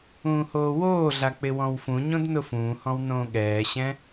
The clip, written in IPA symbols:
ũː h oː w oː ɮ a k͡p ɪ w ɔ̃ w f ũ ɲ õ d n ʊ f ũː h ɔ̃ w n õː ɠ ɛː ɕ ɛ̃

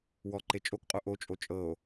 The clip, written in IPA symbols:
w ɔ ǃ e t͡ʃʼ o k qʼ o ʔ o t͡ʃʼ o t͡ʃʼ ɤ o̯

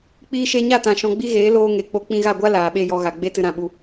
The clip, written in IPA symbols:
k͡p iː˧ ʃ e˧ ɲ a˦˨ t ã˨ ʃ ɔ̃˨ ɡ͡b i˧ ɣ eː˨˦ l oː˧ ŋ e˨ k͡p o˧ k͡p ĩ˧ ɣ a˦˨ ɡʷ a˦ l aː˨ ɓ e˦˨ j ɔ˧ ɣ a˨ ɡ͡b e˦ t ɨ˧ ɾ ã˨ ɓ u˧

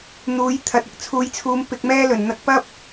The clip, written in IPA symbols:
n̪ uː˨˥ j t̪ʰ ɐ˨˥ t̚ ɪ˧ k̚ t͡sʰ uː˨˧ j t͡sʰ uː˨˧ m p ɪ˧ k̚ m ɛː˥ l ɵ˨˩ n n̪ ɐ˧ k̚ p ɐ˥ p̚

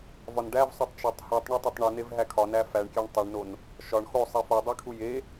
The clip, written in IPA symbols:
v ɒ n ɖ æ v sˤ o tˤ t͡ʃ æ tˤ h u tˤ ɳ o tˤ e tˤ ɳ u n e v ɦ æ kʰ ɒ n æ f æ ɳ kʲ æ ɳ tˤ e ɳ n o n | ʃ ɒ ɳ x o sˤ i f o dˤ i kʰ u j e

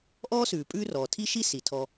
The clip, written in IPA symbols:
ʔ ɔː˥ s ʉː˩ pʼ ʉː˦ r ɔː˩ tʰ i˦ ʃ i˦ s i˩ tʰ ɔ˨

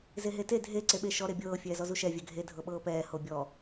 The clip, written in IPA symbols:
z e ɦ e t e dʱ e ǀ e ɓ e ʃ ɔ ɾ e bʲ ɤː fʲ ɛː z ɔ z u ʃ ɛ vʲ ɛ ɡʱ e dʱ ɤ ɓ ɤː p ɛː h o bʲ ɔ

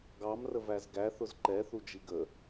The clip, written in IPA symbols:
ɡ ɑ m r ə v æ z ɡ æ θ ʊ z ǃ ɛ θ u d͡ʒ i ɡ ə

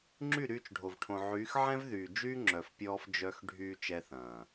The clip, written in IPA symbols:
ŋ͡ǁ y˦˨ ɾ yː˧ t͡ʃ ɖʱ o˨ v ʈʰ õ˨ ʕ yː˨˦ x ʕ ɛ̃˦ v ð yː˨ d͡ʒ yː˦ ŋ͡ǁ œ˨ f pʲ ɔː˧ f d͡ʒ œ˧ x ɖʱ yː˧ t͡ʃ ɛ˧ θ ɐ̃ː˨

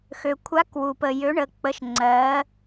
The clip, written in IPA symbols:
x ø˩ kʷʰ a˧˥ k w u˩ p ə˩ j ø˩˧ ɳ ə˩ k͡p ə˩˧ ʃ ŋ͡ǀ ɜ˩˧

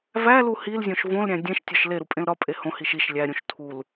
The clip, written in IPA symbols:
v æ l u h i l zʲ õ ʃ v õ l ɾʲ æ̃ dʲ ẽ ʃ tʲ ɒ ʃ l e ɾ u pʼ ẽ l ɾ ɒ pʼ e h õ h i ʃ i ʃ lʲ æ ɾʲ ũ ʃ tʰ u l

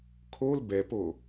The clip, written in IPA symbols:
kʰ o l b ɛ p o

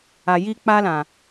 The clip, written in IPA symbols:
a˨ j i˧ k͡p a˧ l ã˨

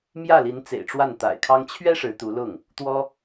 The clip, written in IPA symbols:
m j ä˥˩ l i˧˥ n t͡s ḛ˨˩ ɪ̯ ʈ͡ʂ w a˥˩ n t̪ a̰˨˩ ɪ̯ kʰ ɑ˥ ŋ t͡ɕʰ ɥ ɛ˥ ʂ ɻ̩˧˥ t̪ u˧˥ l ʊ˥˩ ŋ | t̪ w ɔ˥

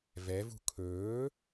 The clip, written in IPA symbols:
v ɛ v ṳ kʰ ɵː

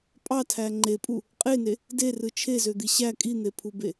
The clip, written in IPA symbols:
pʼ ɑ tʰ æ ŋ͡ǃ e pʼ u | qʼ e n e | d e r ɯ t͡ʃʰ e z ø d̪ i ɕ æ kʼ i n̪ e pʰ u b e

